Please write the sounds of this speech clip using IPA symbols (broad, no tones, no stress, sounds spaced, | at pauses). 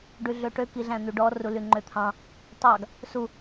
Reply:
ɖ y ɮ ø ʈ ø k i ɮ æ̃ n̪ y ɖ ɔ r u l y ŋ͡ǃ ø t̪ʰ ɑ̃ | tˤ ɑ ɡ | s u